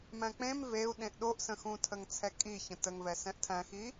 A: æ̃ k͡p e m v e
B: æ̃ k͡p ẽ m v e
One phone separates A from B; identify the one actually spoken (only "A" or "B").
B